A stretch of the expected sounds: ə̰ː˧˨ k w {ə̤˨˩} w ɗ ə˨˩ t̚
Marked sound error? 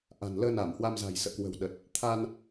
no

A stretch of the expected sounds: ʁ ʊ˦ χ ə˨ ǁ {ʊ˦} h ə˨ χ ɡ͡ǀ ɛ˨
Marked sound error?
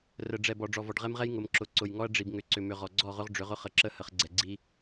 yes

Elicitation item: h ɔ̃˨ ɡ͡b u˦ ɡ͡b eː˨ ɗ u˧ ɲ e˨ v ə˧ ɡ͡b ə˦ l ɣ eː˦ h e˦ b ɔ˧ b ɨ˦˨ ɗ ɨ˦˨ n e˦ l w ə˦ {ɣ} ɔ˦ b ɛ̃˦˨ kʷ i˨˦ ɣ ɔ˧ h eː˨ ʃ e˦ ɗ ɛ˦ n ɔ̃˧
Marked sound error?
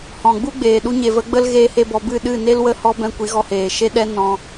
yes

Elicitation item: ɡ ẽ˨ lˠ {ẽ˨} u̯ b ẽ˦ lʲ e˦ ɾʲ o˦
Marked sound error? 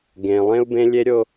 yes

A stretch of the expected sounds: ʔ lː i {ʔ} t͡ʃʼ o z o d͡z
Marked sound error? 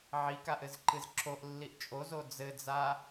no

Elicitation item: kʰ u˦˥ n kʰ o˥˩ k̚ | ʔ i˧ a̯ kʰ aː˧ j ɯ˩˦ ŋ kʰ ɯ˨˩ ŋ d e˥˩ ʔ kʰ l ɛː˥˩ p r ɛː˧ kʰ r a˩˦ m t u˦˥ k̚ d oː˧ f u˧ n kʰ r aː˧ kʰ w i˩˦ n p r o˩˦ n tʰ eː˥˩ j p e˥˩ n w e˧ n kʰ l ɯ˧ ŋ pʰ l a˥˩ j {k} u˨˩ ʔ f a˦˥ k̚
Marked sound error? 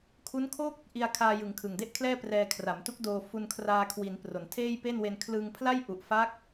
yes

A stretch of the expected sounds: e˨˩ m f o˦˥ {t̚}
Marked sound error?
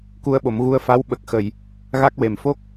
yes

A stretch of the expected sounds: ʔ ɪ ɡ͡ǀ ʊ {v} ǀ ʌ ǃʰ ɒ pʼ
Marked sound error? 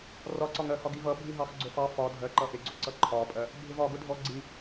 yes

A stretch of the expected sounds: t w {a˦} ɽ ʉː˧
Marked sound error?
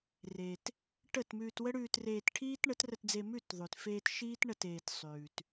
yes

